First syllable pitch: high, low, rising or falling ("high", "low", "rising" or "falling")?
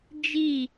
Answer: falling